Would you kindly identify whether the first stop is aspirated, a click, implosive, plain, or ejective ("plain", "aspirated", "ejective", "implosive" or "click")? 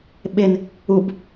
implosive